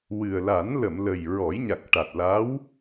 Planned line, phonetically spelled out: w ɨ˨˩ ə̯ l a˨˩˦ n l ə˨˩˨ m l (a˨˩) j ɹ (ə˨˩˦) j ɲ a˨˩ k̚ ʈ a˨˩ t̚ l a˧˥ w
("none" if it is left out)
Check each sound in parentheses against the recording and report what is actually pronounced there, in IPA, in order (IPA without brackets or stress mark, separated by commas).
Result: ə˨˩, ɔ˨˩˦